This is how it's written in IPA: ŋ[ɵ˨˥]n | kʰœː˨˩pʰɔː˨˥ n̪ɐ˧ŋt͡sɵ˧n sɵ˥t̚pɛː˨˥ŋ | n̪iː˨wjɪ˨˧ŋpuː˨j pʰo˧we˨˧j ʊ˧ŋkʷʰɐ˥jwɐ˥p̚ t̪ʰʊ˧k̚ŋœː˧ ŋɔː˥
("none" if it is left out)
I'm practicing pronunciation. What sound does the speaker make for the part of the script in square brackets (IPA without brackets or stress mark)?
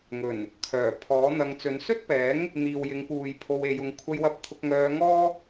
ɵ˨˩